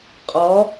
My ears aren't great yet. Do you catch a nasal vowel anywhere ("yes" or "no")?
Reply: no